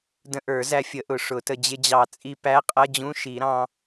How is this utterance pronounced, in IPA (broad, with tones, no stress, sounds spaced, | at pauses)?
d ə̃˧ ʔ ə˞˨˩˦ z æ˧ fʲ ə˨˩˦ ʔ ʊ˨˩˦ ʂ ʊ˨˩˦ t ə˧ d͡ʑ ɪ˧ d͡ʑ ɑ˨˩˦ t͡sʼ i˧ p æ˧˥˧ qʼ ʌ˧˥˧ d͡ʑ ũ˧˥˧ ʃ i˨˩˦ ɾ ɑ̃˧